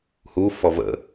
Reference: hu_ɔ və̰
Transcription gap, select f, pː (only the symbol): f